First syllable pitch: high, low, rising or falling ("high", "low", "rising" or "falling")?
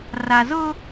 low